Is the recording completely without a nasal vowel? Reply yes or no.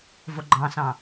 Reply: no